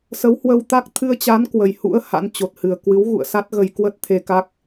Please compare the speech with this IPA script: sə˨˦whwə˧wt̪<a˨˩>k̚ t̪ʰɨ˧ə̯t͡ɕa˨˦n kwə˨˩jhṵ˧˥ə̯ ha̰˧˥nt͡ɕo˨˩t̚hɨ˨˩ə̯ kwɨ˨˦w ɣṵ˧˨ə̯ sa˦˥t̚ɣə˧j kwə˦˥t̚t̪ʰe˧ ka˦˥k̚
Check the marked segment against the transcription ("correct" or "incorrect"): incorrect